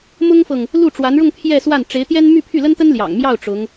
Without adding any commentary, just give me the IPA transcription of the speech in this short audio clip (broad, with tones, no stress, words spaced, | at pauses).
mʊ˥ŋfɤ˨ŋ | lu˥˩ʈ͡ʂwa˧˥nɻʊ˥˧ŋ pʰjɛ˥˧swa˥˩n ʈ͡ʂe˧˥ɪ̯t̪jɛ˥n my˥˧pʰy˥˩lə˥nt̪ə˥n ljɑ̰˨˩ŋmjɑ˥˩ʊ̯ ʈ͡ʂʊ˧˥ŋ